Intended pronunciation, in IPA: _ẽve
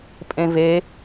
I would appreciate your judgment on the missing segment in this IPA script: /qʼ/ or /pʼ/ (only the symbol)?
pʼ